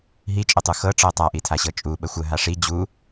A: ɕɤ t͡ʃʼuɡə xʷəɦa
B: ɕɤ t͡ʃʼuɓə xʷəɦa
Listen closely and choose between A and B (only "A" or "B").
B